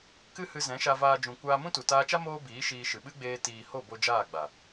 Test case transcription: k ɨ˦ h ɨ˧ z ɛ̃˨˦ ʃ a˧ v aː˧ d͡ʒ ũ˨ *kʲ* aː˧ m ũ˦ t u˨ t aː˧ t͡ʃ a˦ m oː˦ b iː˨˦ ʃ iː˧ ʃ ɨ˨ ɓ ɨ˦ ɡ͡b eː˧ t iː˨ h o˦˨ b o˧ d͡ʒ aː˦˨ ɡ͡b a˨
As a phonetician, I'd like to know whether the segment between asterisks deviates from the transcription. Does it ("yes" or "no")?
yes